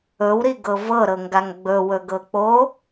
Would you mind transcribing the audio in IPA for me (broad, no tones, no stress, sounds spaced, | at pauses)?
ɵ w ɾ i ɡ ɤ v ɤ ɾ ɤ ŋ ɡ a ŋ ɡ͡b ɵ w ɵ ɡ ɤ k͡p o